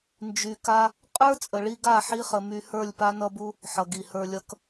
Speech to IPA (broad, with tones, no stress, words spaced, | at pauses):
nd͡ʒy˨ka˦ | qʼə˞˦ t͡sʼə˨ɭi˧ɡa˦˨ ħi˦χə˧my˧ hə˞˦˨lʲpa˦nʌ˦bu˦ | ħʌ˨ɡi˨hə˞˧lʲʌ˦k